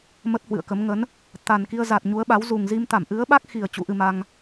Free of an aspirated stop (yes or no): yes